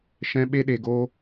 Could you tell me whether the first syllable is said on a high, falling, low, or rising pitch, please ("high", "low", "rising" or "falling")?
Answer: high